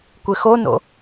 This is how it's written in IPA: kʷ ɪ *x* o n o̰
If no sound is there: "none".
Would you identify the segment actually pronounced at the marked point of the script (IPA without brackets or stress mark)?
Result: x